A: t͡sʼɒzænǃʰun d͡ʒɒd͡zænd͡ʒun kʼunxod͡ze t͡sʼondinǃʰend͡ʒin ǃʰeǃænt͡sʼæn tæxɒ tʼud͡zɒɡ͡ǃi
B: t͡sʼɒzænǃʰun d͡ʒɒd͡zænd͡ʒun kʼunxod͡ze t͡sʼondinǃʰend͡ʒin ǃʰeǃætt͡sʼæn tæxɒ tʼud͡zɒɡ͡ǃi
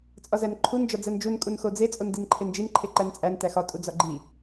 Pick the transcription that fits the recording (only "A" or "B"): A